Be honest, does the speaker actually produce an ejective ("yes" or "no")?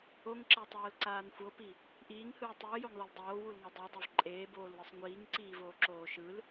yes